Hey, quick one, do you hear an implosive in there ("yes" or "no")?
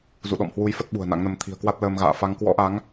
yes